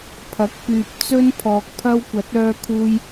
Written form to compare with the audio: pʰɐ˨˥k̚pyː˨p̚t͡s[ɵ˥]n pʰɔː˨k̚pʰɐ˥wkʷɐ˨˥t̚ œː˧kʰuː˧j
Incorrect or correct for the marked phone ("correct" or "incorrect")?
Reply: correct